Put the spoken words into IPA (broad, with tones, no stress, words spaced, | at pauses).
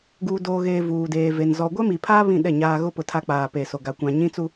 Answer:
ɡuː˨doː˨ɣeː˨ vuː˨deː˨ve˨n zɔ˨ ɡʷɛ˦mi˨pʰaː˦ βĩ˦˨ɗɛ˦˨ɲaː˦ ɣʊ˦pʊ˨ tʰa˦k͡paː˨pe˨so˨ ɡa˨kʷã˨ɲĩ˦t͡su˦